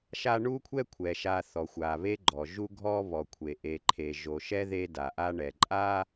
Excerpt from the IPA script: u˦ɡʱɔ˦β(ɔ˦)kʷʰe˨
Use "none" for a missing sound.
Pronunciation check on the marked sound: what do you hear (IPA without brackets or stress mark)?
ɔ˨